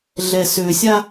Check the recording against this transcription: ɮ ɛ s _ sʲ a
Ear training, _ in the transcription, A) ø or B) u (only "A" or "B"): A